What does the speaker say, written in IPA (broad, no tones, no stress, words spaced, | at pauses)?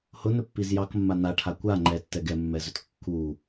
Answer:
hʊnɵpːiz jɑkmːa naʈʰa kʷa ŋ͡ǃɛtːɛ ɡɛmːɛzɵt kːu